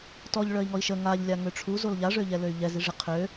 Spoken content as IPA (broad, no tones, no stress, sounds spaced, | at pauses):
t ɔ ʎ ɭ œ i̯ ŋ ɔ i̯ ʃ ə ŋ a ʎ lʲ a ŋ ø ʈ͡ʂʰ u z o l ʎ a ʐ ø ʎ ɛ l ø y̯ ʎ ɛ z i ʐ i qʰ ø